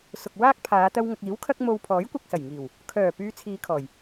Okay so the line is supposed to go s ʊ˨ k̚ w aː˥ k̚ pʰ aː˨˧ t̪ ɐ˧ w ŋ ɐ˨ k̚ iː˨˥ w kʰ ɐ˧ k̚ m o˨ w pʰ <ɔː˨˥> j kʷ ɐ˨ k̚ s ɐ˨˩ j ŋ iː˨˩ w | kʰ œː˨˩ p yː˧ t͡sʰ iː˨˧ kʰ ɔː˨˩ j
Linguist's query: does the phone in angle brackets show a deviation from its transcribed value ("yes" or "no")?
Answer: no